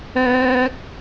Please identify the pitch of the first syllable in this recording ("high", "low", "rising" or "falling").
high